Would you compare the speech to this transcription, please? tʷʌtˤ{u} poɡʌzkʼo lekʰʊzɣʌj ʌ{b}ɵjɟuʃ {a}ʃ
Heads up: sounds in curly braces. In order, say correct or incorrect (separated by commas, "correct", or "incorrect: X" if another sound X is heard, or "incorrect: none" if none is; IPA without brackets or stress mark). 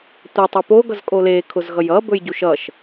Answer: incorrect: o, correct, incorrect: ʌ